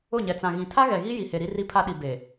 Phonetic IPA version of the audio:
ʊ˦˨ɲɛ˨t͡sã˨ɣĩ˨ tʰa˦ɣɛ˨ɣi˦ ji˨he˨ɾi˦ ri˦pʰa˦ɗi˨ be˨

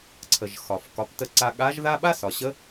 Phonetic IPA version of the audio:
ǀʰə˩ʒ xɒ˩f kɒ˩˧ptə˧ǀa˧ ɠa˧˥ʒða˥ ɓa˥sɒ˩ɕə˧˥

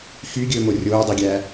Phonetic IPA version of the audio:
xyɡʲɵːmo rʲoːdˤiɡʲæ

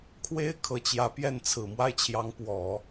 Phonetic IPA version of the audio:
kʰwe˥ɪ̯ kʰɤ˨˩t͡ɕjä˧˥ pjɛ˥˩nt͡sʰɹ̩˨˩ mwa˥˩ɪ̯t͡ɕʰjɑ˧˥ŋ pwɔ˨˩˦

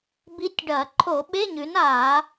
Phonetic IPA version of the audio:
bi˧˥tʲɖɐː˧˩˧ ǃʰo˧˩˧ ɓe˧˥˧ɲʉ˩˥naː˧˩˧

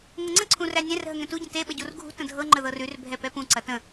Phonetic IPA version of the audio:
ŋɤŋ͡ǀə̃ ǀʰũrænʲɛ̃r ɦəŋɛ̃tu ɟə̃te ɓəɟurɡʱṳ tə̃dʱɤ ŋ͡ǃəðɤrʉr bʱɛpɛpũ ǀɐtə̃

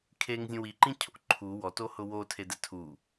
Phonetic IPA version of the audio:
kʰeŋzʲũ wiǃĩcʰo̰ ǃʰu wɔtohʊ wotʰedɛ tʰu

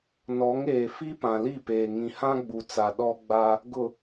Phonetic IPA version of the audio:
nɔ˨˦ŋeː˨ fi˦pã˨li˦˨peː˨ ŋĩ˨hã˦ɡ͡bu˨t͡sa˨ ɗɔ˦ ɡ͡ba˦ | ɡʊ˨

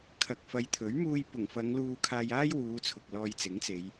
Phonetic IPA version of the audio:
kʰɐ˨k̚fɐ˨˧j t̪ʰɵ˨˥ɥmuː˧jpʊ˨˩ŋfɐ˨˧ŋ luː˧kʰaː˧jaː˥j wuː˨˧ t͡sʰʊ˨k̚lɔː˧jt͡sɪ˨˥ŋt͡se˨˧j

